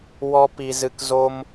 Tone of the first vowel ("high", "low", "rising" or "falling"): high